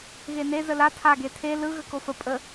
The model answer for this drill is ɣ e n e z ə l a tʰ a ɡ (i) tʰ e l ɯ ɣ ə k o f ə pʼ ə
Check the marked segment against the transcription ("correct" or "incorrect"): incorrect